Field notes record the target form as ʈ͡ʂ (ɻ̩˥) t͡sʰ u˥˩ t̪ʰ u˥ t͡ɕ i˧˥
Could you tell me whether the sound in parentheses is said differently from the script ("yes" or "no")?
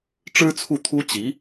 no